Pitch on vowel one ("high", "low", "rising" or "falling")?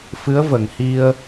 rising